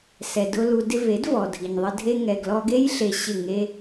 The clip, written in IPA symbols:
s ɛ˧ d ʊ˦ l u˧ d ɪ˦ v e˨˦ d v ɔ˨ dʱ i˨ ɲ ðˤ ə˧ dʱ e˧ ŋ ɛ˨ ɡ l ɔ˧ ɡ e˦ j ɬ e˧ ɕ ɪ˦˨ ŋ e˧

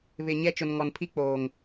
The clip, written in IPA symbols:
β ɪ˨ ɲ ɛ˦ t͡ʃ ʊ˨ n ŋ ɔ˨ n pʰ i˦ k͡p oː˨ ŋ

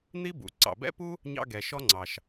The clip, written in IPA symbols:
n̪ i˥ b ṵ˩ ǀ ɑ̰˩ b ɛ̰˥ p u˥ | ɲ ɑ̰˥ ɡ ɛ˩ ʃ ɔ˥ ŋ͡ǀ ɑ˩ ʃ

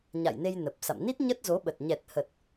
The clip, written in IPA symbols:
ɲ a̰˧˨ j n e˧ j n ə˨˩ p̚ s a̰˧˨ m n i˦˥ t̚ ɲ ə˦˥ t̚ z o˨˦ ɓ ə˨˩ t̚ ɲ ɛ˨˩ t̚ h ə˨˩ t̚

